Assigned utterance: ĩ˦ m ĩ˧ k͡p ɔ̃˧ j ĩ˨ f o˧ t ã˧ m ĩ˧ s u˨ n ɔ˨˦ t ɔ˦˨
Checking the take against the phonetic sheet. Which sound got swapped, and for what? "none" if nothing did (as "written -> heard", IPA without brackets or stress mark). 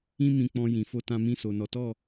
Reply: u˨ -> o˨